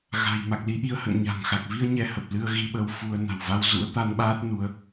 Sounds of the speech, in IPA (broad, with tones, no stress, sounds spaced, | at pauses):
ɣ a̤˨˩ j m a˨˩ k̚ l i˨˦ ʔ i˨˦ ə̯ h ə̰˧˨ n ɲ a̤˨˩ ŋ x a˨˩ k̚ v i˧ ə̯ ɲ ɛ˧ h ə˨˩ p̚ l ɨ˧ ə̯ ɣ i˧ ɓ ə˧ w f u˧ ə̯ n a̤˨˩ w v a˧ w z ṵ˧˥ ə̯ t̪ a˧ n ɓ aː˦˥ t̚ n u˧ ə̯